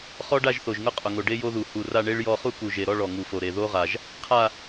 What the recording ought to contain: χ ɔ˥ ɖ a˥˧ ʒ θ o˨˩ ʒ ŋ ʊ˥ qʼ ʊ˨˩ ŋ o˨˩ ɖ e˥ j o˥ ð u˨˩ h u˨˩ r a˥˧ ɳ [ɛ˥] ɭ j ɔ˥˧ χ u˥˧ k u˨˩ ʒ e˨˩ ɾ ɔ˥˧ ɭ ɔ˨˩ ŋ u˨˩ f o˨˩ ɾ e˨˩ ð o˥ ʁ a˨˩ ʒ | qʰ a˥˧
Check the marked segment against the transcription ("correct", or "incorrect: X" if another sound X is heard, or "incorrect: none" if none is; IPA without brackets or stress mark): incorrect: e˥